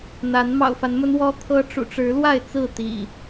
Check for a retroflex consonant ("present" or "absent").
present